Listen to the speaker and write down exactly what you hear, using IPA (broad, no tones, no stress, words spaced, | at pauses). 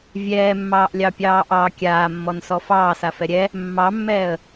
vʲɛːmːɑːʔlʲɑpʲɑː ʔɑ kʲaːmːɔnsɔ fɑːsafɛ ɾʲɛ | mːɑmːɛːə̯